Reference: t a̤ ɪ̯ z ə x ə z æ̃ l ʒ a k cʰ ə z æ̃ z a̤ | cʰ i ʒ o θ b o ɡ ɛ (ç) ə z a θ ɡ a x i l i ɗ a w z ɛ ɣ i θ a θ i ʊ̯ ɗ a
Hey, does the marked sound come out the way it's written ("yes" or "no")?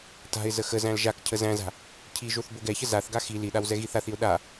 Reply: yes